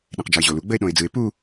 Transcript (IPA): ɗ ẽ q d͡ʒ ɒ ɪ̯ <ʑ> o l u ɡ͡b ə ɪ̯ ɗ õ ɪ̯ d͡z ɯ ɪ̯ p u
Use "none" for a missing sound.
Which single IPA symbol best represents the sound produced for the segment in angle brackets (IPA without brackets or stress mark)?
ʑ